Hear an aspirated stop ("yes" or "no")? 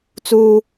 no